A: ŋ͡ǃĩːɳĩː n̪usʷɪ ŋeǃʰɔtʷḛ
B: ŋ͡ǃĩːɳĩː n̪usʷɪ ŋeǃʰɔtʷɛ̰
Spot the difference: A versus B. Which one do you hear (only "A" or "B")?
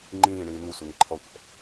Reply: B